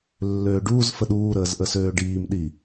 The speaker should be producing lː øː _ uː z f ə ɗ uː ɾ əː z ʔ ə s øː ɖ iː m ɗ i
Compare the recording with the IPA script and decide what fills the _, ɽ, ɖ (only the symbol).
ɖ